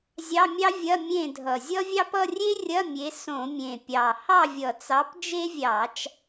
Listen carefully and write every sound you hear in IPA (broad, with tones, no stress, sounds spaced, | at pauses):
zʲ ɑ˧˥˧ mʲ ɑ˥ vʲ ɐ˧˥˧ mʲ ẽ˦˨ dʱ ʌ˨˩ zʲ ʌ˥ vʲ ɑ˥ p ʌ˧˥˧ rʲ e˥ rʲ ɐ˧˥˧ mʲ e˨˦ s õ˧˩˧ mʲ ẽ˨˩ pʲ ɑ˨˩ h ɑ˦˨ vʲ ʌ˨˩ t͡s ɑ˨˦ p d͡ʒ e˥ vʲ ɑ˧˩˧ t͡ʃ